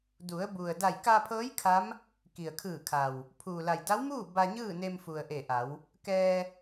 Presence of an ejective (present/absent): absent